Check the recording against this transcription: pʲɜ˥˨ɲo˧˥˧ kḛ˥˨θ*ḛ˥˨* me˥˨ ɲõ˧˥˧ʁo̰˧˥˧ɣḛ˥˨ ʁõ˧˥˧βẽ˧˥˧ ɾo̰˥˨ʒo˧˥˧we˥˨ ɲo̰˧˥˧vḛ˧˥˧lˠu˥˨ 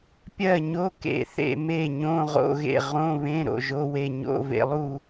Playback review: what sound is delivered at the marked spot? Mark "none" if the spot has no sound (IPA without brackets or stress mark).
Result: ḛ˥˨